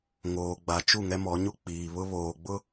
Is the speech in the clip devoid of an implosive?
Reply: yes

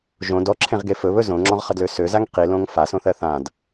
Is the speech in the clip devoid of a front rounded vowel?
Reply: no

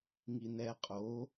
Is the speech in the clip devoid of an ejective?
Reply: no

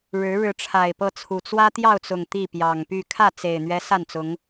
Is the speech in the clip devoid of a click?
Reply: yes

